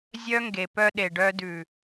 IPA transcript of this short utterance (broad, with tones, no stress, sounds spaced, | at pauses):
zʲ œ˦ ŋ ɡ e˨ p œ˧ ɗ e˨ ɖ œ˧ d ʉ˨